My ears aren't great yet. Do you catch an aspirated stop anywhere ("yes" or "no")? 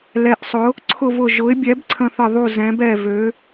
yes